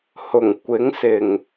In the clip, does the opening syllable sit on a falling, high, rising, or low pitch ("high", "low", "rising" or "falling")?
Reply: low